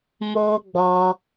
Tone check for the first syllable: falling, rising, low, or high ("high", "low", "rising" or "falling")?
high